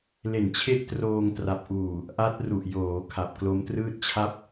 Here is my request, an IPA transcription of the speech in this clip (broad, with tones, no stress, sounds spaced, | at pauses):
l e˨˩ n t͡ɕʰ e˦˥ ʔ t r oː˧ ŋ t r a˨˩ p̚ ʔ uː˨˩ | ʔ a˦˥ t̚ r u˨˩ ʔ j oː˩˦ kʰ a˨˩ p̚ k l o˦˥ m t r ɯː˥˩ t̚ t͡ɕʰ a˥˩ p̚